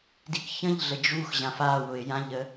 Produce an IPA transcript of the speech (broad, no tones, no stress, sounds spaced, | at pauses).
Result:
d i k ç ə̃ ʎ ɮ ə d͡ʒ u x ʑ ã f a w ʊ ɪ̯ j ã ʎ ə